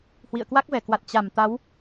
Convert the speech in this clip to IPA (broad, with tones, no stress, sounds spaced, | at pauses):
h w ḭ˧˨ ə̯ k w a˦˥ k̚ v ɛ˧˩ k w a˨˩ t̚ t͡ɕ a˧˩ m t̪ a˨˦ w